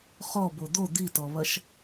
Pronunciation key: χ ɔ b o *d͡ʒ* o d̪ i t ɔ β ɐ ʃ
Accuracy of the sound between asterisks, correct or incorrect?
incorrect